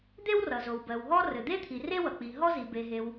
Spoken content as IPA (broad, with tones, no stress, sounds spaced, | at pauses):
d̪ e˥ w r ʌ˩ z o˩ w b ɜ˩ w ɦ ɔ˥ r ɘ˩ d̪ e˥ t̪ʰ i˩ r e˥ w ʌ˩ k͡p i˩ ɦ ɔ˥ z i˩ b e˩ ɦ e˩ w